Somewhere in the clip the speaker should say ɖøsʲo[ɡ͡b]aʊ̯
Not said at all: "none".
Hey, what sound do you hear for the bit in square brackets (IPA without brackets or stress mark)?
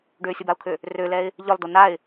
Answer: b